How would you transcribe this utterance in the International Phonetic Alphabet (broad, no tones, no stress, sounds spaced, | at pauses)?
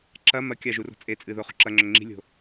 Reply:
ǁ ɐ m ɐ kʲ a ʒ u r o̤ t͡sʼ e t͡sʼ ɨ ð o χ ṳ ǁ ɐ ŋ͡ǁ ɵ ŋ͡ǁ i̤ lʲ o̤